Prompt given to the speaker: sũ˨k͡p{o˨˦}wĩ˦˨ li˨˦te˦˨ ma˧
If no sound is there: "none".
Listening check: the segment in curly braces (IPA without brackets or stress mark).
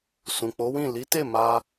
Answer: o˨˦